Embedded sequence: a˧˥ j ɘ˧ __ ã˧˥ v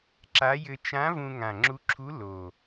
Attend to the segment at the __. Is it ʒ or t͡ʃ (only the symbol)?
t͡ʃ